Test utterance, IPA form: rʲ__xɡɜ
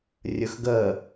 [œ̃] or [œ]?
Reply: œ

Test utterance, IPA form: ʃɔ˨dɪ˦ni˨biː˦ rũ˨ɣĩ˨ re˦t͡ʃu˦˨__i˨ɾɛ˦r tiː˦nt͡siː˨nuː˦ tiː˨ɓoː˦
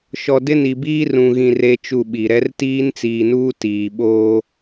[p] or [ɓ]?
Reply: ɓ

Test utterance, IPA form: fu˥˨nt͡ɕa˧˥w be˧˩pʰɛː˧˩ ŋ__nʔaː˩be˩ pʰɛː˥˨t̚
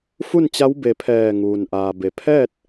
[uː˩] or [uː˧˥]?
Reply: uː˩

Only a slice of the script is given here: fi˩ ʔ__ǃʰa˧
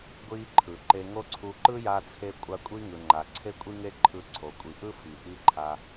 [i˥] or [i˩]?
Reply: i˥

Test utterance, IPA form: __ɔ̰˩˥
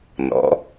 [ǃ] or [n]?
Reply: n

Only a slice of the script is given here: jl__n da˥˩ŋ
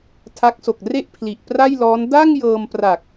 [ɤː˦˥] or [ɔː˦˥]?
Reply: ɔː˦˥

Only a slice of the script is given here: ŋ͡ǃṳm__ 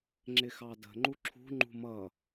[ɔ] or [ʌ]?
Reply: ʌ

